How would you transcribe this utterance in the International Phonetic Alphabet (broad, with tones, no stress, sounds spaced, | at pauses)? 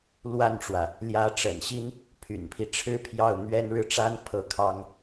l w a˥˩ n ʈ͡ʂ w ä˩ | l j ä˧˥ ʈ͡ʂ ə̰˨˩ n ɕ i˥ n | pʰ y̰˨˩ n pʰ i˦ ʈ͡ʂʰ ɻ̩˥ pʰ j ɑ˥˩ ʊ̯ n̪ ɥ ɛ˥ n ɻ ɻ̩˥˩ ʈ͡ʂ a˥ n pʰ ɤ˥˩ kʰ ɑ˥ ŋ